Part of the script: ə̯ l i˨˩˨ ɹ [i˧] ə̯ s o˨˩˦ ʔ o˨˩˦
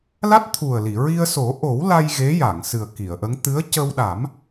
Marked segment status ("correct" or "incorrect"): correct